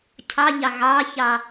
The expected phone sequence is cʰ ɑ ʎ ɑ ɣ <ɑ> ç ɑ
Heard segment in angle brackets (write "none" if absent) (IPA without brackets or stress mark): ɑ